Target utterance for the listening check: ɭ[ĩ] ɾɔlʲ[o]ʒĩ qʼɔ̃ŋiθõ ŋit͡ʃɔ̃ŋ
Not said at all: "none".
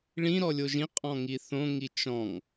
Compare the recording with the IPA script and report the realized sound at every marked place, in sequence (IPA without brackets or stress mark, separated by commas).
ĩ, o